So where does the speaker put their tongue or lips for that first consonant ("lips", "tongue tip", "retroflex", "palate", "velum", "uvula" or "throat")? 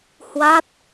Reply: throat